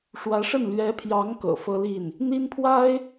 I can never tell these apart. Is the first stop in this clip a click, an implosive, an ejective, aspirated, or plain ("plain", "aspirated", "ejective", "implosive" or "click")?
aspirated